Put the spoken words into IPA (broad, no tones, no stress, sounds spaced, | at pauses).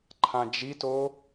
ǃʰ ã d͡ʒ i t o